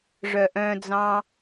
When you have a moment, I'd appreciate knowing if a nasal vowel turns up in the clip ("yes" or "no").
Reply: yes